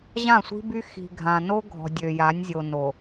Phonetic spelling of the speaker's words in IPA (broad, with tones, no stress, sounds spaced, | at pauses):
ʑ ã˦˨ sʷ i̤˦ b y˦ x i̤˨ ɡʱ ã˨ n o˦ ɡʱ ɔ̤˨ dʲ ø˨ j a˨˦ nʲ zʲ o˨ n o˨